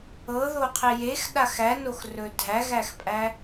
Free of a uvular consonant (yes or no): no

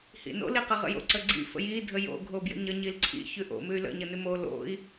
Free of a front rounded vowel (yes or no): no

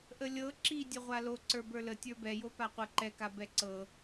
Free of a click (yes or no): no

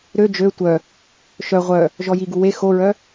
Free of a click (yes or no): yes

